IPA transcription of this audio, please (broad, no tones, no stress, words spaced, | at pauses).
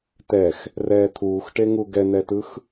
tɛx | rɛːt̪ʰuːxʈeŋu ɡɛn̪ɛtɯx